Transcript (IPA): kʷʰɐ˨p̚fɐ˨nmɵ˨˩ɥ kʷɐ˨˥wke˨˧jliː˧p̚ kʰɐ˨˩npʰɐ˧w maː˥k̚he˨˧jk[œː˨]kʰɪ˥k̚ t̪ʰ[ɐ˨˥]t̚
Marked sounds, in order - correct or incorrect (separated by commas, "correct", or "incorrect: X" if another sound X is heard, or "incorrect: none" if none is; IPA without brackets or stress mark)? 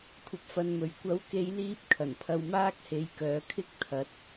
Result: correct, correct